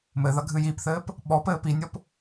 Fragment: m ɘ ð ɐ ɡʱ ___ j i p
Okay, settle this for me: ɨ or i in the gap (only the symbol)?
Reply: ɨ